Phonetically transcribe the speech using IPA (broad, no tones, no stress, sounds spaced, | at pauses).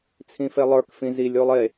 t͡sʰ ĩ f e lˠ ə˞ k f ĩ z i lʲ o lˠ e